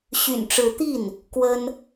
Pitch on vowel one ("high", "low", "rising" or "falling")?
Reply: low